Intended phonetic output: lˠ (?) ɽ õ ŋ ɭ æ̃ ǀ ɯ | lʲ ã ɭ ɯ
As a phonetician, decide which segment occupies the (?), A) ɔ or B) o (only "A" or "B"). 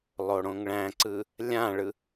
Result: B